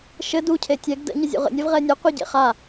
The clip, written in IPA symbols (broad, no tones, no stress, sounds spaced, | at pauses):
ʃ ɘ d u cʰ e tʲ ɛ ɡ d ə̰ ɲ ə zʲ ṵ ʁ ə̰ nʲ ɛ v ʁ ɛ nʲ ɘ qʷ e ɟ ḛ χ a